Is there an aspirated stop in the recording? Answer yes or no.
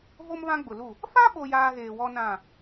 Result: no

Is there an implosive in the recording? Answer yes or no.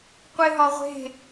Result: no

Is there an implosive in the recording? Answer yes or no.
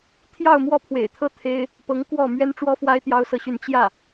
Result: no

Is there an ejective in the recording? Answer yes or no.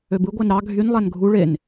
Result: no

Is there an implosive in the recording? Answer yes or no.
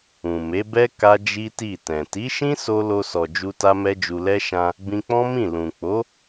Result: no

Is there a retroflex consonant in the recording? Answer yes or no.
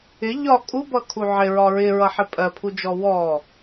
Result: no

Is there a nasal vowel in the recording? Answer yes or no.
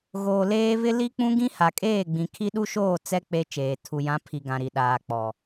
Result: yes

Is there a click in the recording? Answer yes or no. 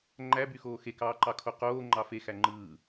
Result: yes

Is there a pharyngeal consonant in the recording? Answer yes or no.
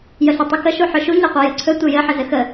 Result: yes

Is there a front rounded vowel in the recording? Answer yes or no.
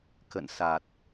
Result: no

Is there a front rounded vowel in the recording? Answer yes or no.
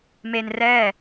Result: no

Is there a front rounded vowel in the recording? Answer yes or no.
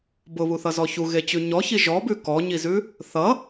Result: no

